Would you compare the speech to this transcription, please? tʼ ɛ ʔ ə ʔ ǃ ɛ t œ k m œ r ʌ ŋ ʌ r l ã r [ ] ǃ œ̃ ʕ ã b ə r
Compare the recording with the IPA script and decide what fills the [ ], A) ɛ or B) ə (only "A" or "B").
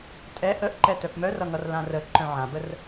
B